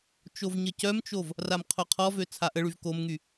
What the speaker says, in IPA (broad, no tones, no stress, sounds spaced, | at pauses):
t͡ʃ o v ɲ ə c œ m t͡ʃ o v | r a m qʰ o qʰ ɔ v ø t͡sʰ a ʔ ə ɭ y v k o m ŋ y